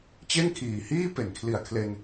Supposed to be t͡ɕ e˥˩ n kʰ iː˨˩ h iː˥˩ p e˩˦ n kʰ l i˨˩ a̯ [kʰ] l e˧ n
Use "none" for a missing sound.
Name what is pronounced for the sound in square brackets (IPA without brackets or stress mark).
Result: kʰ